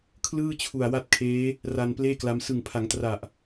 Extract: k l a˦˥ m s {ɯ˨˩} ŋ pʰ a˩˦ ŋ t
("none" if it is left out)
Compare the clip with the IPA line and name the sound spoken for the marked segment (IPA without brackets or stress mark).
ɯ˨˩